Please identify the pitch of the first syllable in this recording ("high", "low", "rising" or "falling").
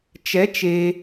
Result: rising